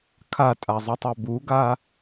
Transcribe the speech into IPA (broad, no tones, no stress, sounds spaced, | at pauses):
kʰ a tʼ a zˤ u tˤ ø b u ɡ a